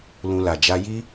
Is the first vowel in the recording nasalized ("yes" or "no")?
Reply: yes